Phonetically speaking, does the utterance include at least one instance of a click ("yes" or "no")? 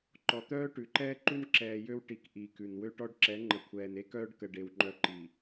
yes